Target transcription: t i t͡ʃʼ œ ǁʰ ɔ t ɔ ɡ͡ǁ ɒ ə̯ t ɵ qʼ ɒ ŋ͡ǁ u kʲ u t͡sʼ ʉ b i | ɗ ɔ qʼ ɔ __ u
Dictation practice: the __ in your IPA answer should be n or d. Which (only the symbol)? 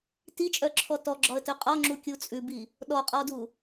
d